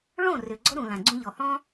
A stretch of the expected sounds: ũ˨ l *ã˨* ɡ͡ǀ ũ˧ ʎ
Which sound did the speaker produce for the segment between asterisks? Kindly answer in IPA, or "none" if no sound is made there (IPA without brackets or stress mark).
ã˨